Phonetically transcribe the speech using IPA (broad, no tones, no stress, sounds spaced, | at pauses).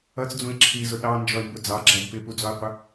ʌ t͡s d͡z ũ e̯ ǁʰ i z ʊ ɗ ɑ n d͡ʒ ɔ e̯ m b ʊ d͡z ɑ ɡ͡ǁ æ d p ɪ p u d͡z ɔ e̯ qʷ ə